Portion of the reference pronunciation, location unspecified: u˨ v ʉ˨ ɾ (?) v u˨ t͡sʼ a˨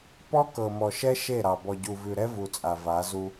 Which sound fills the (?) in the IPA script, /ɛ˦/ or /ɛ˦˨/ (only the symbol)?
ɛ˦